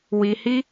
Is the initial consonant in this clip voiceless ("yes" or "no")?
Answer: no